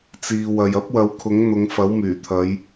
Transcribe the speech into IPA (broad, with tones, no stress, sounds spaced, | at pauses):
t͡s iː˨ w ɐ˨ j ɐ˥ p̚ w ɐ˨˥ w kʰ ʊ˨˥ ŋ n̪ ʊ˨˧ ŋ f ɐ˨˥ w m yː˨˩ t̪ʰ ɐ˨˧ j